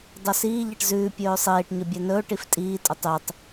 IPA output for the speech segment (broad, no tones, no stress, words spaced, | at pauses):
dˤɵsiː ʎɛʈzʉː pʲɵːsˤiːʈ ɲɵbʲɛnɵː ʈiftʼiː tʼøtˤytˤ